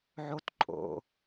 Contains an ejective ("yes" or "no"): yes